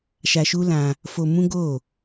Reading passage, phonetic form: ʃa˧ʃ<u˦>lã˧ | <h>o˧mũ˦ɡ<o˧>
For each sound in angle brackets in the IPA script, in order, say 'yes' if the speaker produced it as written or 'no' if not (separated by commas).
yes, no, no